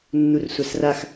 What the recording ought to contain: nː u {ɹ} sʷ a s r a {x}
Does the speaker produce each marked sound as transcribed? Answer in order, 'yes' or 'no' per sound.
no, yes

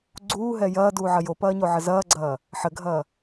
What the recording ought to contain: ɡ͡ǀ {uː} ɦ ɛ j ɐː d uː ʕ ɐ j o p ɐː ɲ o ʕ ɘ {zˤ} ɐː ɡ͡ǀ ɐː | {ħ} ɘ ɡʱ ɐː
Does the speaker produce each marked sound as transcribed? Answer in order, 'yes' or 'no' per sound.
yes, no, yes

